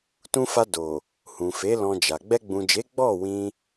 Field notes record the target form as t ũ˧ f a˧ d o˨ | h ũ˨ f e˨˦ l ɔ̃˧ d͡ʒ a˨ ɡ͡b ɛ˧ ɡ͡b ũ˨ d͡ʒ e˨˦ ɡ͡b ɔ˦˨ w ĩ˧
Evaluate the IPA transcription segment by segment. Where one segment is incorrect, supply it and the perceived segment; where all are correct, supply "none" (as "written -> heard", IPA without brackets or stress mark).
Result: none